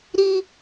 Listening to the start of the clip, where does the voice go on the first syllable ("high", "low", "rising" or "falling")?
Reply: high